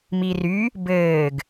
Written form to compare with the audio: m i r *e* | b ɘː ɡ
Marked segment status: incorrect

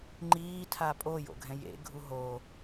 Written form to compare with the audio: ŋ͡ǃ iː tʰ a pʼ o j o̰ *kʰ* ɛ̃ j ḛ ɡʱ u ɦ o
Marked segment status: incorrect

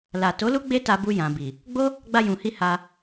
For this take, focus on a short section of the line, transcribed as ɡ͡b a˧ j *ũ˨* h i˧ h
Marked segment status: correct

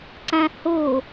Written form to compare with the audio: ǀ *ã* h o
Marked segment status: correct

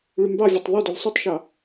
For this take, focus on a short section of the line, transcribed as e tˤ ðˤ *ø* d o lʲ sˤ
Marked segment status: correct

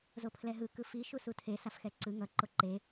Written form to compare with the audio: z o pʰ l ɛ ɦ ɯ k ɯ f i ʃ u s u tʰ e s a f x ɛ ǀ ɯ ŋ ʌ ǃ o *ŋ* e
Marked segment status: incorrect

